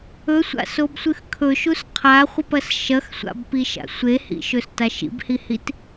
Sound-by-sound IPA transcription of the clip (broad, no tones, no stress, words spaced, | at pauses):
ɵsʷa̰sobsʷɨx kʰɵʃus qʰaχʷɨpɐs ʃɐxsʷa̰bpiʃa̰ sʷehḭʃɵstaʃ ḭbhihit